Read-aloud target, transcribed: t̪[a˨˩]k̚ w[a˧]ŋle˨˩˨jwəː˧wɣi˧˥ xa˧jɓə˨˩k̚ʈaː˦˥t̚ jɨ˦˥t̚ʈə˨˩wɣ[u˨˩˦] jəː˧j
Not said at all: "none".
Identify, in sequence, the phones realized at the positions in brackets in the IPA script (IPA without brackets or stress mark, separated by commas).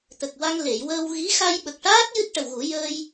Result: ə˨˩, a˧, u˨˩˦